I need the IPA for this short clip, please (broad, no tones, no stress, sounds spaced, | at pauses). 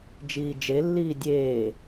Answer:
d͡ʒ iː d͡ʒ e lː iː dʲ eː